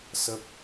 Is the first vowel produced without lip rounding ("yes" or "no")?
yes